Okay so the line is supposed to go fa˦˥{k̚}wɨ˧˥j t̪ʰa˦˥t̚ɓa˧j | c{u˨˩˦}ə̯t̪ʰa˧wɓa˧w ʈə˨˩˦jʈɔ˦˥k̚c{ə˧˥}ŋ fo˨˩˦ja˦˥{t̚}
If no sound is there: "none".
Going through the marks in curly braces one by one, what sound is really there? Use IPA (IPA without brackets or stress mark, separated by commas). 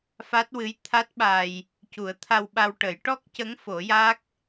t̚, u˨˩˦, ə˧˥, k̚